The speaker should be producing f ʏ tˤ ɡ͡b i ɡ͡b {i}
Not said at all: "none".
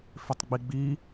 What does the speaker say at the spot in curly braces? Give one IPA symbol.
i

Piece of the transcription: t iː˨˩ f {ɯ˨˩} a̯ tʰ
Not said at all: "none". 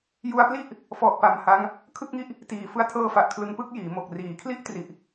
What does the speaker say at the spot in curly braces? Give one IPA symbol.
ɯ˧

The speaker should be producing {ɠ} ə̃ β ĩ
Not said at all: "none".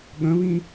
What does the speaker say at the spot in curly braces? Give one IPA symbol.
ɠ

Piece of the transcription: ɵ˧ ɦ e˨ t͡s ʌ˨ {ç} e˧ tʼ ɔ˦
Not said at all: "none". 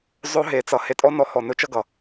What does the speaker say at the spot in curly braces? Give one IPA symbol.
h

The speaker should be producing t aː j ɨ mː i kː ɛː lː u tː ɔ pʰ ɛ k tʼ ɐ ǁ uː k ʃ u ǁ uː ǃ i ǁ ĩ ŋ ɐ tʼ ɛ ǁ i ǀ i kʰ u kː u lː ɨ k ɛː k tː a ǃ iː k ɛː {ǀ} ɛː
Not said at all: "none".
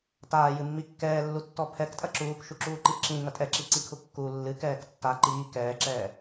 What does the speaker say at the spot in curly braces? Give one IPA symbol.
ǁ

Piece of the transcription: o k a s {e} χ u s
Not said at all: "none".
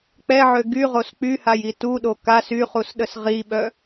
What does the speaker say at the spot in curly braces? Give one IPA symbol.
y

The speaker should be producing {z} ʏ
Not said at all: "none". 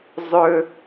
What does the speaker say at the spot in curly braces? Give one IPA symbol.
zˤ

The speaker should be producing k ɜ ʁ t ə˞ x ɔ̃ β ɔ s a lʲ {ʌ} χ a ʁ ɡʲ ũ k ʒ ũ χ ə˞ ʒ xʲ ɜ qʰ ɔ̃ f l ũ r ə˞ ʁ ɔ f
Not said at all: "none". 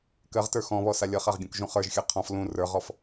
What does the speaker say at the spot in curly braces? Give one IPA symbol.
ʌ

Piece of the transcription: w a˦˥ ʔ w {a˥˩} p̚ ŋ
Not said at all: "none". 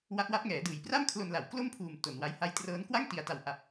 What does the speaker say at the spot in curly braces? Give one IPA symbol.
a˦˥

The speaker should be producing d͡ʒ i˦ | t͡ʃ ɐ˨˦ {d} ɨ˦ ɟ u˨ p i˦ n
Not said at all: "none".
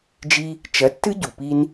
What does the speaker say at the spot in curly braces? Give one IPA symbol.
tː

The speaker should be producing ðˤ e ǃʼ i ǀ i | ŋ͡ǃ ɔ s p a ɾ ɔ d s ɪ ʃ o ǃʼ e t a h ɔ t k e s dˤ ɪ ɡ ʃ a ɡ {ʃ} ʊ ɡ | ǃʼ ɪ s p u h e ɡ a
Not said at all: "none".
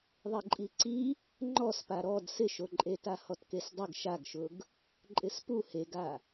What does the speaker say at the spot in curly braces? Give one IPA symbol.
ʃ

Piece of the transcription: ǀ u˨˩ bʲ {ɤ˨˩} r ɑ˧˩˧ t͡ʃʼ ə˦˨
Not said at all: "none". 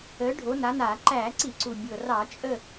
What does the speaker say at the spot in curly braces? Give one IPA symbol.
ɤ˨˩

